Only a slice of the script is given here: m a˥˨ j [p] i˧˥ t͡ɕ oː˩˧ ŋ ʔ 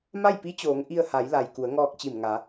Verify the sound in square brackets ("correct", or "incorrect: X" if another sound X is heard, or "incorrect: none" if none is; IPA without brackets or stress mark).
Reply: correct